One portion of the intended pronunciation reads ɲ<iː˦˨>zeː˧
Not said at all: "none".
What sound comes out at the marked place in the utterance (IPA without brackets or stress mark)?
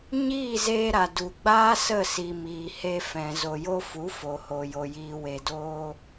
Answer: iː˦˨